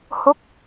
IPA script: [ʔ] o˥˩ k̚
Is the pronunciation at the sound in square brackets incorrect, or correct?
incorrect